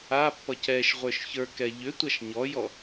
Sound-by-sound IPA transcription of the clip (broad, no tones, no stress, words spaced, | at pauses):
apːʌ cɛʃʁʷə˞ʃ çə˞kɛ ʎʏtʷaʃ ɲɔjɔ